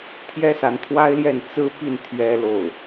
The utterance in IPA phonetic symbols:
t̪ʰ j ɛ˥ s a˧˥ n t̪ʰ w a˥ ɪ̯ l j ɛ˥˩ n t͡s ɹ̩˥ p i˥˩ n t̪ʰ ɥ ɛ˥ l o˥˩ ʊ̯

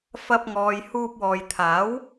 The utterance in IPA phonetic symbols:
f ɐ˧ p̚ ŋ ɔː˨ j h uː˧ p̚ w ɔː˨ j t̪ʰ aː˨˥ w

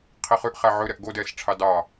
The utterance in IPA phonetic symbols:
qʰ i χ ʉ ʔ χ æ ʕ ɵ ɾ ɛ ʔ ɡ o d ɛː s ʈ͡ʂʰ ɑ d ɑ

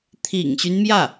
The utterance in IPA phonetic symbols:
t̪ʰ ḭ˨˩ ŋ ɕ y˦ n m j ä˥˩

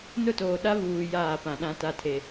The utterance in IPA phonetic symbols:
n ʊ˦˨ t oː˨ ɗ a˦ β uː˨ j aː˦˨ p ã˨ ɗ ã˦ t a˦ tʰ e˦

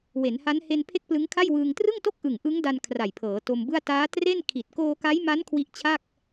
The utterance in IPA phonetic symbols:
w e˩˦ n h a˦˥ n h e˧ n pʰ e˥˩ k̚ p l ɯ˦˥ ŋ kʰ a˥˩ j w ɯː˧ ŋ t r ɯ˥˩ ŋ t o˥˩ k̚ ʔ ɯ˨˩ ŋ ʔ ɯ˦˥ ŋ d a˧ n kʰ r a˨˩ j pʰ ɤː˩˦ t o˧ m b ɯ˥˩ a̯ t aː˦˥ t r e˥˩ n kʰ i˨˩ t̚ k oː˧ k a˦˥ j m a˦˥ n kʰ w i˦˥ ʔ t͡ɕʰ a˥˩ k̚

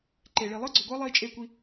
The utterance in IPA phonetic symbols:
ǃ e˩ ɭ i˩ lˠ ɯ˥ ɡ͡ǀ o˩ ɡʷ ʌː˥ lˠ iː˧ t͡ʃʼ e˧ kʷ i˧

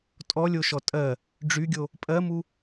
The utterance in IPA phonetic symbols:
tʼ ɔ lʲ o ʃ ɔ tʼ ɜ | ɖ͡ʐ y ɡʲ o | pʼ ɜ m u

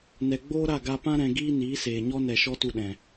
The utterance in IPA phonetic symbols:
n ɛ˨ ɡ͡b oː˦ ɾ a˦˨ ɡ a˧ p ã˦ ɾ ɛ̃˧ ɡ iː˦ n iː˨˦ s eː˨ ɲ ɔ˦ n ɛ˨ ʃ ɔ˦ t u˧ ɗ ɛ̃˨

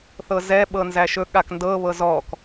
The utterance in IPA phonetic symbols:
θ ɤ z ɛ ɓ ɤ n z æ ʃ ɵ ɠ a k n d ɤ β ɤ z ɔ k

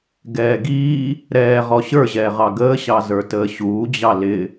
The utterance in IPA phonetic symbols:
ɡ ɛː ɡ iː | ɾ ɛː ʁ ɔ ɕ ə˞ ʑ ɛː ʁ ɑ ɡ əː ɕ ɑ z ə˞ t əː ɕ uː d͡ʑ ɑ l ɪ

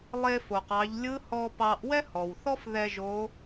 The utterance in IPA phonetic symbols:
lˠ e˧ f o˩ q ɑ˩˧ ʎ lʲ ɯ˧˥ h ɔ˧ p ɑ˧ ʔ w ɛ˥ h ɔ˩ w θ ɔ˥ f ð ɛ˧ ʒ o˧˥

